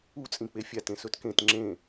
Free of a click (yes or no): no